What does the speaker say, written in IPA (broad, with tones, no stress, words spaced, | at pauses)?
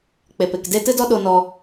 k͡pe˨pe˨kde˦ tɨ˦dɔ˦ɗo˧ nɔ˧